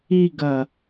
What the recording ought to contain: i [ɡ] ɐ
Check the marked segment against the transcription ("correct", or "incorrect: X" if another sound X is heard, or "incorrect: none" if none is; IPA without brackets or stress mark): correct